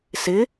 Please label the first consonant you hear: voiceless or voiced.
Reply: voiceless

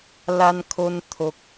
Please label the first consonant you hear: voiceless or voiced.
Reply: voiced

